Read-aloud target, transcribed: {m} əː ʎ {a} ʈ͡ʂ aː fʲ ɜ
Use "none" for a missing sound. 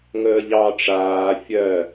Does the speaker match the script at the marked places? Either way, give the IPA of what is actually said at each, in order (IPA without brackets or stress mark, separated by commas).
ŋ, ɑ